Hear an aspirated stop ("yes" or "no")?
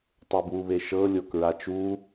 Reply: no